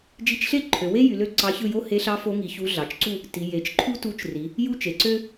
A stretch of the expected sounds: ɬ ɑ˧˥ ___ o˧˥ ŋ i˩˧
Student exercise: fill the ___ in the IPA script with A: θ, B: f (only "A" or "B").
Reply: B